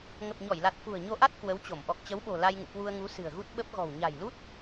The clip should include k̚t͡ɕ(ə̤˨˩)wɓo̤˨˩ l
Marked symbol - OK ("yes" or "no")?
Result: no